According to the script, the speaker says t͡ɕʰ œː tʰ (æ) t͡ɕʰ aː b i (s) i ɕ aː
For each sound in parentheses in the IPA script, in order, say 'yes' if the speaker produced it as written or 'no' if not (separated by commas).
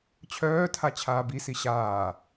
no, yes